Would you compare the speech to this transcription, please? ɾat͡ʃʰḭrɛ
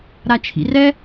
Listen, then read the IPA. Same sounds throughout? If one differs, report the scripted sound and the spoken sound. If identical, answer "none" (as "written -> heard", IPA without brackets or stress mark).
none